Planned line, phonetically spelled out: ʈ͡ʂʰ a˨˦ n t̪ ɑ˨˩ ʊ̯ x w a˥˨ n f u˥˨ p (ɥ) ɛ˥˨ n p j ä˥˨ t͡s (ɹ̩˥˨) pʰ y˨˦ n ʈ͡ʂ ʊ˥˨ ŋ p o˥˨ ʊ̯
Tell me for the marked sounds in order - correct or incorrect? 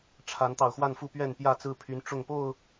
correct, correct

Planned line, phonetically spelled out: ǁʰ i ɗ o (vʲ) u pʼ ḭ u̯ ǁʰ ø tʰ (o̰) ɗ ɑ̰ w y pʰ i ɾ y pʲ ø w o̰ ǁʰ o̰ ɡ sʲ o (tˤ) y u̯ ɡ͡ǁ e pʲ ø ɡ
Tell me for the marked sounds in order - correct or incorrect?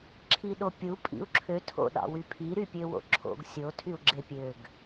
incorrect: pʲ, correct, incorrect: tʰ

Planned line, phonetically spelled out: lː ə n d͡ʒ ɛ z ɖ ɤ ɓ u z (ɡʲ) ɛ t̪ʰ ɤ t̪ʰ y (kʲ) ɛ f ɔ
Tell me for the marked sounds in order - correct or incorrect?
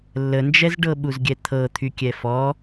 correct, correct

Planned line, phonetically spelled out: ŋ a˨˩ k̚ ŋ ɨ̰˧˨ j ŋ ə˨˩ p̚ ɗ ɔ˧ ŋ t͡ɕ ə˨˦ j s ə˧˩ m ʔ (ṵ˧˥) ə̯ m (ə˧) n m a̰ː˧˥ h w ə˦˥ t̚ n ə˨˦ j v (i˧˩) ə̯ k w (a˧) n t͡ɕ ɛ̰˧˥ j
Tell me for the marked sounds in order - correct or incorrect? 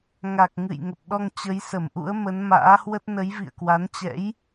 correct, incorrect: ə˨˦, incorrect: ḭ˧˨, incorrect: a˨˦

